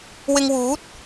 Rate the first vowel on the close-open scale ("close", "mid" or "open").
close